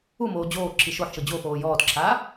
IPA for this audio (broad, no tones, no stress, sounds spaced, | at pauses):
u m oː d͡ʑ oː ǁʰ i ʃ o ħ ʃ ɤ d͡ʑ o f oː j ɔː t ǁʰ aː